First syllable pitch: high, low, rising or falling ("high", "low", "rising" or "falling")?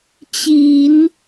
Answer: low